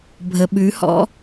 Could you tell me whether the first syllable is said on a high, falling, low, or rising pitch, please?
low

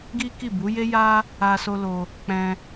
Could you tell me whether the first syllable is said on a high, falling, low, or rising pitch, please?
high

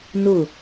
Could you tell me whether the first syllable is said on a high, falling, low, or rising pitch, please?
falling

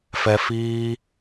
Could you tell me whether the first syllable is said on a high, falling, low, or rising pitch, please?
high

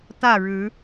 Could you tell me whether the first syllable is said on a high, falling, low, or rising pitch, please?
falling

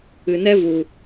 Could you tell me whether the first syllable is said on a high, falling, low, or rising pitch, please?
low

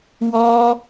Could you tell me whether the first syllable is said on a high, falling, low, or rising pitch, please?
high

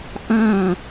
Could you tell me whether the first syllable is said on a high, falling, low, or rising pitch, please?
falling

